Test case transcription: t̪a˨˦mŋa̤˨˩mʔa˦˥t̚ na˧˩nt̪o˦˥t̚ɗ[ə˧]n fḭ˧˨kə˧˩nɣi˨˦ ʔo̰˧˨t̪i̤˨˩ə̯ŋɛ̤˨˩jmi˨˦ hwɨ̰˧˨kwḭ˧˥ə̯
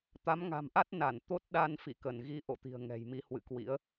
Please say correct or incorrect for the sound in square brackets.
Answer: incorrect